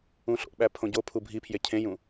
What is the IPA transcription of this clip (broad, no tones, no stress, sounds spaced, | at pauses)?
ũ ɬ o̰ ɓ æ pʰ õ ɟ o pʰ u bʱ i pʰ j e cʰ ẽ j ũ